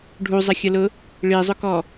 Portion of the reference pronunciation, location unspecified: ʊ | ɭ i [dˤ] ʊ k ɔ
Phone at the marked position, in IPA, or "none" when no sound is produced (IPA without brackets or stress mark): zˤ